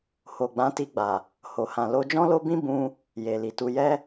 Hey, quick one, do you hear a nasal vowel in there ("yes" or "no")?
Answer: yes